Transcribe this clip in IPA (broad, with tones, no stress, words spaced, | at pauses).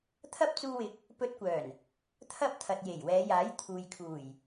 t̪ʰɐ˥p̚t͡suː˧wɪ˨˥k̚ | pɵ˧t̚kʷœː˨˩n | t̪ʰɐ˥p̚ t̪ʰɐ˨t̚je˨˩jwɛː˨˧jaː˨˥j t̪ʰuː˨jkʰuː˨˩j